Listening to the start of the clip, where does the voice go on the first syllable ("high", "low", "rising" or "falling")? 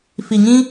low